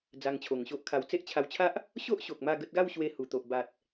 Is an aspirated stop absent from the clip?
no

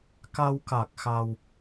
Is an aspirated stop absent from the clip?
yes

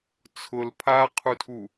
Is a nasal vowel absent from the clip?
yes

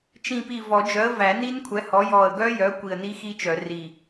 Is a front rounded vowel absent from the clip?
no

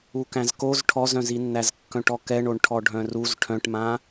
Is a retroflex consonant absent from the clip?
no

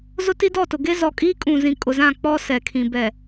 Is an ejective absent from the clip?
no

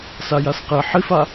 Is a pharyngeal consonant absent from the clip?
no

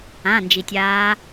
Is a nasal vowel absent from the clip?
no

